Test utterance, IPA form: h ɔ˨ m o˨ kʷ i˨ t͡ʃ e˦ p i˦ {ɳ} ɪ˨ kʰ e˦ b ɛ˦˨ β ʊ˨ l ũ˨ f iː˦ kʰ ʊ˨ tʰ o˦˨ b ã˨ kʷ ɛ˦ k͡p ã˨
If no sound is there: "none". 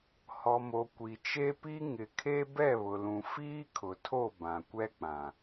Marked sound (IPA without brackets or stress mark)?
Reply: ŋ